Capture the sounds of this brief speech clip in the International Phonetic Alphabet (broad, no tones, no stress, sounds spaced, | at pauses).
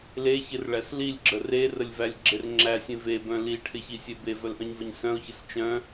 l e ç ɪ r ɭ æ s l i lʲ ɡ͡ǁ ə r e r ə lʲ v æ lʲ ɡ͡ǁ e r ŋ͡ǁ æ sʲ ẽ v e b œ̃ l i ʈʰ ɪ ç i sʲ e b e v œ l ʔ œ̃ ɲ v ə ɲ s œ̃ ʊ̯ ç ɪ s t͡ʃ œ̃